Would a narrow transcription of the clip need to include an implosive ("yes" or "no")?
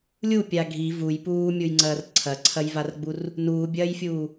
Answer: no